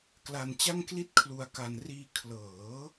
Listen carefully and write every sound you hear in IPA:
k l a˧ n t͡ɕ a˥˩ ŋ k l i˥˩ t̚ kʰ l u˧ a̯ k a˧ n r iː˧ kʰ l ɤː˩˦

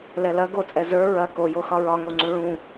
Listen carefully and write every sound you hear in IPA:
l ɛ l ɐ ɡ o t͡sʼ ɛ z ə˞ ɹ ɐ k o j o x ɒ ɹ ɒ ŋ o ŋ͡ǀ ũ ɭ ũ

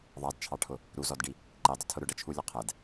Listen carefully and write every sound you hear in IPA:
ðˤ ɑ d t͡ʃʰ ɑ ʈʰ ʊ | ɾ u z ɔ d ɖ i | ǃ i dˤ ʊ tʰ ʊ ɾ ʊ ɖ ʌ t͡ʃʰ u lʲ ʊ qʰ ɛ d

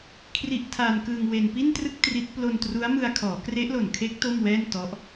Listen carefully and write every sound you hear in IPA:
kʰ r i˦˥ ʔ tʰ aː˧ n k ɯː˧ ŋ w e˧ n p i˥˩ n t r ɯ˥˩ k̚ t r i˦˥ t̚ p l o˧ n t r u˦˥ a̯ m ɯ˧ a̯ kʰ ɔː˩˦ k r e˦˥ ʔ l o˨˩ n kʰ e˦˥ k̚ t o˥˩ m w ɛː˥˩ n t ɔ˦˥ ʔ

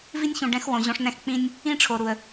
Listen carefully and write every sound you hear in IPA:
v i˦ nʲ ç ũ˨ ɖ ɛ̃˦ x w õ˨ ʑ õ˦ ʂ n ɛ̃˦ x k͡p ĩ˦ nʲ | ĩ˦ ʈ͡ʂʰ o˨ ɾ u˨ ə̯

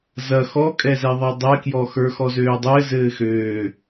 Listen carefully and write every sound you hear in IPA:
z ɐ x ɔ kʼ ɛ z ɛ ðˤ ɛ dˤ ɛ k j ɔ x ə˞ x ɔ z øː dˤ ɘː z ɘː x øː

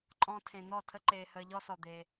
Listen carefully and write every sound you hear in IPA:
ǃʼ ɔ̃˦ tʰ ẽ˧ n̪ ɔ˦˨ tʰ ə˦ ǃ eː˧ h əː˧ ʎ ɔ˦ s ɔ˨ d̪ e˧

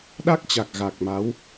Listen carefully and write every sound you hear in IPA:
ɗ a˦˥ k̚ t͡ɕ a˨˩ k̚ ɣ a˨˩ k̚ m a˨˦ w

